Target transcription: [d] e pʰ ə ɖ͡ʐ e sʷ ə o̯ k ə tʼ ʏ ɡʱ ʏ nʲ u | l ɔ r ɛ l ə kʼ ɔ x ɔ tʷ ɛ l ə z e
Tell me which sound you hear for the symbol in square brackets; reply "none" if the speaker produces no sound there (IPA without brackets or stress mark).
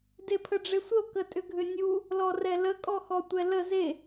d